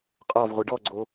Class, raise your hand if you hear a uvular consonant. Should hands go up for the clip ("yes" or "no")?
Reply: yes